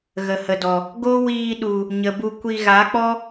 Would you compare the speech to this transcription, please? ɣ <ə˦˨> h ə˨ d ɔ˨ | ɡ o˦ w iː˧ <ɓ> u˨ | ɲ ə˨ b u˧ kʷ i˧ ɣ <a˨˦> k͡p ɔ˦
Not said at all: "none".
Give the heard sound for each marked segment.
ə˨, ɗ, a˨˦

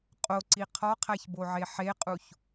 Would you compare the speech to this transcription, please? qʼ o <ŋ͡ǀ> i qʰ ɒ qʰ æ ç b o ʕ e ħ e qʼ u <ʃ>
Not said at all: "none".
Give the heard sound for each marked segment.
ǀ, ç

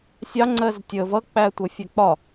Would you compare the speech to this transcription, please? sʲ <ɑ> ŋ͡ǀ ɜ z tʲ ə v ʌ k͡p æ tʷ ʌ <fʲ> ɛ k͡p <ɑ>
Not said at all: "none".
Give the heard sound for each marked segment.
ɑ, fʲ, ɒ

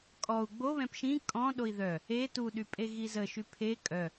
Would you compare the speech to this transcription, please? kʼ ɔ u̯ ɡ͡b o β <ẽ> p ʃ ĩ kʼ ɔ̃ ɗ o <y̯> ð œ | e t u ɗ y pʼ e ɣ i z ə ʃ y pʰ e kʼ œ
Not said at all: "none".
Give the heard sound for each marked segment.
ɛ̃, i̯

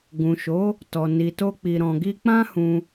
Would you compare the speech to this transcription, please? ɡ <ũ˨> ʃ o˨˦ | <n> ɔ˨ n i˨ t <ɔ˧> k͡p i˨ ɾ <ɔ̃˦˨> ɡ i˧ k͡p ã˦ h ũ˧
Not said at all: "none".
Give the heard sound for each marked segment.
ũ˨, t, o˧, ɔ̃˨

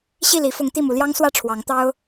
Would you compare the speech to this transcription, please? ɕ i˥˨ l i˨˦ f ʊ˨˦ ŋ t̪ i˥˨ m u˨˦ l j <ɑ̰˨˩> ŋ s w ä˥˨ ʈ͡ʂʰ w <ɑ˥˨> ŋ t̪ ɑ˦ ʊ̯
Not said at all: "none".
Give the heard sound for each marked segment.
ɑ˦, ɑ˨˦

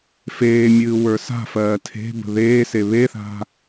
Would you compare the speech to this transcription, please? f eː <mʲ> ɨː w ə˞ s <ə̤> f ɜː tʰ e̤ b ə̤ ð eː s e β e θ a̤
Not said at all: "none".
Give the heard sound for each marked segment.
mʲ, a̤

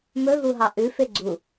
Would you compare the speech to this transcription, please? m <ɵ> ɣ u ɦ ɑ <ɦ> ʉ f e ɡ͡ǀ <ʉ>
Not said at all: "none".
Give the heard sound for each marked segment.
ɵ, ʔ, u

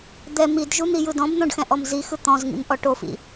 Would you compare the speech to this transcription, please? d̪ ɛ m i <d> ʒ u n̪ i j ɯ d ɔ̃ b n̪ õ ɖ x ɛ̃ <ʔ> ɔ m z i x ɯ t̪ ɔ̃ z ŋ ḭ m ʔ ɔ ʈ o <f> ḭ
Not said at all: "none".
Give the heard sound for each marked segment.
d, ʔ, f

